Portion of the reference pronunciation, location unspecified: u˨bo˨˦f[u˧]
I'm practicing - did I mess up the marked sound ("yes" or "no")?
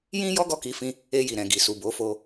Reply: yes